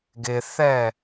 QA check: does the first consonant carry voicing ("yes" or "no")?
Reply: yes